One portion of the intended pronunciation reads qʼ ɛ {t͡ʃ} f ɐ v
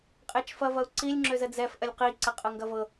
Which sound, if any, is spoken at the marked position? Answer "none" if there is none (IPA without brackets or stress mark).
t͡ʃ